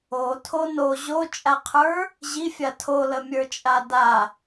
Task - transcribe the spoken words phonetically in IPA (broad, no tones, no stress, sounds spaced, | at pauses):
o tʰ o n o ʑ o t͡ʃʼ a qʰ ə˞ | ʑ i fʲ a tʰ o l ə mʲ ə˞ t͡ʃʼ a d a